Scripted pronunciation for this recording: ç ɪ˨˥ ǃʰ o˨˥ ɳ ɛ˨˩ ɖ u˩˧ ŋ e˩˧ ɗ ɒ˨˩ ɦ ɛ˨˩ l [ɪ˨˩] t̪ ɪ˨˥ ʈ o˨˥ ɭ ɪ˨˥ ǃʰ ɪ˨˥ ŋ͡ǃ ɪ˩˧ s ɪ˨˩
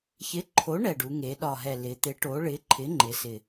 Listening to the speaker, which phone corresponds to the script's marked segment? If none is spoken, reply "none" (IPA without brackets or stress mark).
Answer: ɪ˩˧